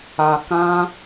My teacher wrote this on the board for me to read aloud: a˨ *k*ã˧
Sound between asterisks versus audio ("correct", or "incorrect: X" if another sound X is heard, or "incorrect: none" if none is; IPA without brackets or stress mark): correct